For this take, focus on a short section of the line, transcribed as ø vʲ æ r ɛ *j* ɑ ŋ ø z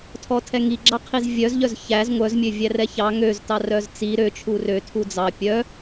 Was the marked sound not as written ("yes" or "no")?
yes